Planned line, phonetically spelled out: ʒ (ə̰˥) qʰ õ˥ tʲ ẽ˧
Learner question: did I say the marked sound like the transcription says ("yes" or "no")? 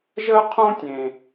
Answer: no